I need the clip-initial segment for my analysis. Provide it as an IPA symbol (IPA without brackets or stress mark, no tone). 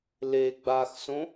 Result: l